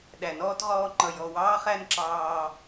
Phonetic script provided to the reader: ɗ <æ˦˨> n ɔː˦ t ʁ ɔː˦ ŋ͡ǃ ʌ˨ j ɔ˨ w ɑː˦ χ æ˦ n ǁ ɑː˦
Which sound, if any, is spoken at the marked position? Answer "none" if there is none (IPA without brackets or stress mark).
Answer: æ˨